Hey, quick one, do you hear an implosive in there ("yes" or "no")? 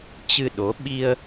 yes